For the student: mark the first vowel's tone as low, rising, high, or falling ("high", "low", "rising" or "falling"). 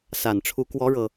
low